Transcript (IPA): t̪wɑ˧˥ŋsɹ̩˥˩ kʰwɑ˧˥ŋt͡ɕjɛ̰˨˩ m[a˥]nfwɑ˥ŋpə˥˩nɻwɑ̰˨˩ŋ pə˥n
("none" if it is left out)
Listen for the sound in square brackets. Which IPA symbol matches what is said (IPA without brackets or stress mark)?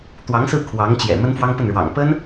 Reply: ə˥